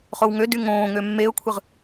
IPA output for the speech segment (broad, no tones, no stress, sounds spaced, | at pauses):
χ o w ŋ ø d y ŋ õː ŋ ø mː e ʊ̯ kʷʰ ɯ ʁ